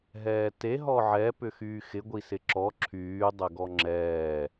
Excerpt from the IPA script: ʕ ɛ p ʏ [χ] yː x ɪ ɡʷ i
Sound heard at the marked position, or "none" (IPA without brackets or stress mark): x